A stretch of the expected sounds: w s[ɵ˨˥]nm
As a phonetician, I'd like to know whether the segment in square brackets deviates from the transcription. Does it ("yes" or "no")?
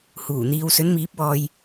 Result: no